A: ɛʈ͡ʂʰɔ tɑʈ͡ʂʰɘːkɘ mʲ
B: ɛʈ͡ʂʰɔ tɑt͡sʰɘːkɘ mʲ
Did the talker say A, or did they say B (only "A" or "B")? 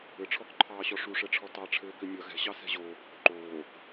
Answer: A